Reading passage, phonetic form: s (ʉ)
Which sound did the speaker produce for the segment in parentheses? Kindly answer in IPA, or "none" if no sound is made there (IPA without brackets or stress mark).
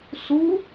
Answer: u